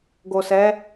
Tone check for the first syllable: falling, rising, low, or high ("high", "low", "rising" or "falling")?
low